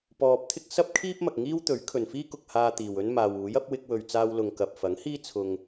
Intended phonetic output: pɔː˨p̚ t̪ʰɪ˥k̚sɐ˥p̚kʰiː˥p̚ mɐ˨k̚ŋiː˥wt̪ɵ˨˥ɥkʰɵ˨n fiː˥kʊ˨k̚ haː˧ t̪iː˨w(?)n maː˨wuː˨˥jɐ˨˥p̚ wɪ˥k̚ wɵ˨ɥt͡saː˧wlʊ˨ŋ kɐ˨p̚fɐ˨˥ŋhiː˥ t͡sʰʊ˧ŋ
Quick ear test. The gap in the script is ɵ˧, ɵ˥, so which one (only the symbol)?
ɵ˥